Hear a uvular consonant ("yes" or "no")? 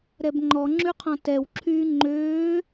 yes